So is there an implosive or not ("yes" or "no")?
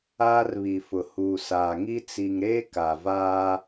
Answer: no